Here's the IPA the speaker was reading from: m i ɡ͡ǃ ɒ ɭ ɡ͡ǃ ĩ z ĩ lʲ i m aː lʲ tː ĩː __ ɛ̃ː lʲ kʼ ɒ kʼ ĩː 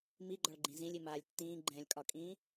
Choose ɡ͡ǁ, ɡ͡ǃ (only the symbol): ɡ͡ǃ